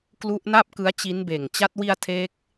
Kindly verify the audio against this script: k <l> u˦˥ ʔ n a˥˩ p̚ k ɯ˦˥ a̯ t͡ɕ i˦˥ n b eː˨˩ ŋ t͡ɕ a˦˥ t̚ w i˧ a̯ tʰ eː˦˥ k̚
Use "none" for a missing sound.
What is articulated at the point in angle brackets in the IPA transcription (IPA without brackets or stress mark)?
l